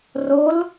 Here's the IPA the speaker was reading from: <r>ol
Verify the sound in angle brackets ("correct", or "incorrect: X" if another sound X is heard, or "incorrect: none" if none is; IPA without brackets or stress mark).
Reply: correct